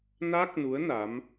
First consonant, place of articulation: alveolar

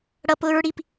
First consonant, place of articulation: retroflex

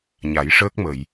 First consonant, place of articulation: palatal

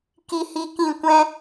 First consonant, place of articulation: velar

